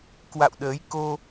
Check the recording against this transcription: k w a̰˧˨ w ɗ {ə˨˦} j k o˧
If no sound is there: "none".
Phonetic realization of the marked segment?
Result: əː˨˦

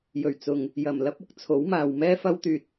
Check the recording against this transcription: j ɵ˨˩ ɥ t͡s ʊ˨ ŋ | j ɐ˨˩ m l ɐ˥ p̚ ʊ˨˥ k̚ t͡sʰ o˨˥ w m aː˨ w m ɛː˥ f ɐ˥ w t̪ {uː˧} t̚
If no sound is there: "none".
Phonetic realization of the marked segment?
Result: yː˧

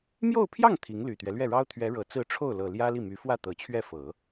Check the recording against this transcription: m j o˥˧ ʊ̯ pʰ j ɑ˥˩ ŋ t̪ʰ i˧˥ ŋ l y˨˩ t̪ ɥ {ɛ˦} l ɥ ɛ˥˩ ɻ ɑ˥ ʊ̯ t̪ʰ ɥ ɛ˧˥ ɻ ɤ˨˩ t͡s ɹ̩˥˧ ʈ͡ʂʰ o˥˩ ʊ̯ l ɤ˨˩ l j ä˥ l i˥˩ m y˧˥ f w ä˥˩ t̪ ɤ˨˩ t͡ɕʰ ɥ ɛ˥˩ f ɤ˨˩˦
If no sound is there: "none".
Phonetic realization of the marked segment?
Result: ɛ˦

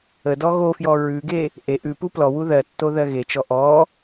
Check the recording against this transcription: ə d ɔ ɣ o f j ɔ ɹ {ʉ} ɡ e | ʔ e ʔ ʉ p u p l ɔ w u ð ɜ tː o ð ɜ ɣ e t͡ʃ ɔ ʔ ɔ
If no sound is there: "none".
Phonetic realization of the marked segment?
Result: ʉ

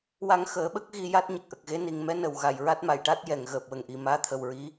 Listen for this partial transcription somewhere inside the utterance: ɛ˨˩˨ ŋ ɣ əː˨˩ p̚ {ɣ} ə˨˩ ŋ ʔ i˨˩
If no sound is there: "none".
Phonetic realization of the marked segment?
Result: w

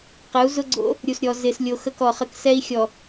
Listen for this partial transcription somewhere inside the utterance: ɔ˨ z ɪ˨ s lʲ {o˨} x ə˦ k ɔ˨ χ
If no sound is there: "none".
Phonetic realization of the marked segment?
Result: o˨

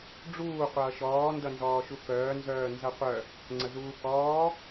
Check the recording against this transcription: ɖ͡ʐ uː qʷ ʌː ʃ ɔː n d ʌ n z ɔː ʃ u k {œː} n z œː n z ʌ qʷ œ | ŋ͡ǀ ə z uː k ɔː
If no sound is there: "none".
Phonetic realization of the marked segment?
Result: œː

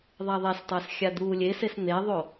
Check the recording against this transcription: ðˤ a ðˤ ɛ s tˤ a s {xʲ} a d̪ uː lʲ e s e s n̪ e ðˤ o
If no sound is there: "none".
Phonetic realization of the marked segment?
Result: xʲ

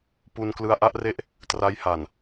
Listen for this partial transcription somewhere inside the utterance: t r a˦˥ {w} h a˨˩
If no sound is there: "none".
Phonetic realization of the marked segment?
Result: j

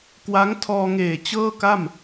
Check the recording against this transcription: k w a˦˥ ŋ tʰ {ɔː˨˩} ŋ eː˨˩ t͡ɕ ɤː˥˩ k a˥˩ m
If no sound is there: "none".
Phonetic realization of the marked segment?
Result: ɔː˧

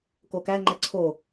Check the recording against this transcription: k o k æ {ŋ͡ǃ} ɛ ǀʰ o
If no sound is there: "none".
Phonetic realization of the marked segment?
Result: ŋ͡ǃ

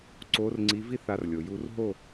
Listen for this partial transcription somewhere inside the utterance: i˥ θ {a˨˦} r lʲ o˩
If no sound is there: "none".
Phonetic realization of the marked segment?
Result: a˨˦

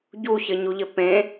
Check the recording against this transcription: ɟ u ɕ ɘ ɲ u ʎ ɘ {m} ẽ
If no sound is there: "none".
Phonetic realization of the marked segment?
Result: p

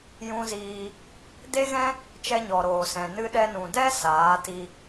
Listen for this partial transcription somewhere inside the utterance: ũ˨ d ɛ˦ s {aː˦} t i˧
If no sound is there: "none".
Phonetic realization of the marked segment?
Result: aː˨˦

